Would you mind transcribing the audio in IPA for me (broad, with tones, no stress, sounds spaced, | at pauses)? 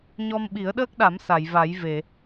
ɲ ɔ˧ m ɓ i˨˩˦ ə̯ ɗ əː˦˥ k̚ ɗ a˨˩˦ m s a˨˩˨ j v a˨˩˦ j v e˨˩˨